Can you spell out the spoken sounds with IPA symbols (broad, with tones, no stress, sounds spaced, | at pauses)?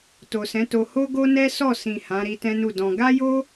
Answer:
t o˨ s ɛ̃˨˦ t o˧ h o˦ ɡ o˦ n ɛ˦ s ɔ˦˨ s ĩ˨ h ã˨˦ ɾ i˧ t ɛ̃˦ n u˦˨ d ɔ̃˧ ɡ a˦ j o˦